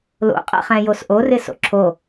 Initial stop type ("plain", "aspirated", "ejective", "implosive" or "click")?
ejective